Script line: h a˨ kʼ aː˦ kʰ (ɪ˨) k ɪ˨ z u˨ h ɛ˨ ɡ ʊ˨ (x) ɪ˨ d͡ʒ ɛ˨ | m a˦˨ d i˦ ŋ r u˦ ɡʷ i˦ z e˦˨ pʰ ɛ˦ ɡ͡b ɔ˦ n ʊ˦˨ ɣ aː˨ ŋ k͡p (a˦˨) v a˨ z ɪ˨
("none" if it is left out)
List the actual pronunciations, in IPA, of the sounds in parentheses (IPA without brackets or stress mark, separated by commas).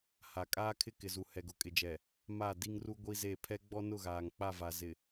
ɪ˦, kʼ, a˦˨